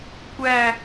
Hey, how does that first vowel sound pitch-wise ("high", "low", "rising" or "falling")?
falling